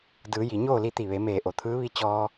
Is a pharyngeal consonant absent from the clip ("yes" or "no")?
yes